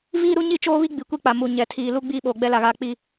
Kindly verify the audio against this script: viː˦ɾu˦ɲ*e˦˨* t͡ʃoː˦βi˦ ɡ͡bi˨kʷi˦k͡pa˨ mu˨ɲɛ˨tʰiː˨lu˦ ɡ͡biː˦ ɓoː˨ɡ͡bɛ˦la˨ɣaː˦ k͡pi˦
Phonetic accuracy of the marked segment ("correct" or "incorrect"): incorrect